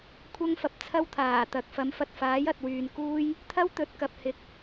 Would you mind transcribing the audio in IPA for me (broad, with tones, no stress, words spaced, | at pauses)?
kʷʰɐ˥ŋfɐ˨p̚t͡sʰɐ˥wt̪ʰaː˨˩ t̪ɐ˨k̚fɐ˨˥mfɐ˨t̚ faː˨˥jɐ˨t̚wyː˨nkuː˥j | t̪ʰɐ˥w t̪ɵ˨˥t̚kɐ˨p̚ hɪ˨k̚